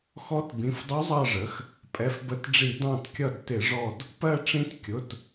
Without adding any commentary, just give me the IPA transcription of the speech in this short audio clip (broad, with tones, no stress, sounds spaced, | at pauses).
x ɔ˧˥ t b ĩ˩˧˩ f dˤ u˧˥ zˤ ɑ˦˨ ʐ ə˩˥ x | pʼ ɛ˩˧˩ f b ə˧˩˧ t ɖ͡ʐ i˧˩˧ d ɑ̃˦˨ t kʲ ʌ˦˨ d t ɪ˧˩˧ ʐ ɔ˦˨ d | p ɜ˦˨ ʈ͡ʂ ĩ˧˥ t kʲ ʊ˩˧˩ t